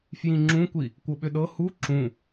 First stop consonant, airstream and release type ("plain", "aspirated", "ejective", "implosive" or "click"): click